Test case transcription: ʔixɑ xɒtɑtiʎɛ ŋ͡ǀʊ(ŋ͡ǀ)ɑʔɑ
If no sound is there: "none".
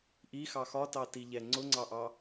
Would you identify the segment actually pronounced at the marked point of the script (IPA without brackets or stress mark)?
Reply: ŋ͡ǀ